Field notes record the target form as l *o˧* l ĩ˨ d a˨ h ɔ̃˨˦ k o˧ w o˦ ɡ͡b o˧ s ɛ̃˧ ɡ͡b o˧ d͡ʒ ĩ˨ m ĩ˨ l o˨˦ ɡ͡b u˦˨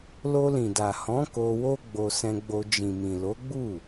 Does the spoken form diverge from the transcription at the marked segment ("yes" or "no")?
no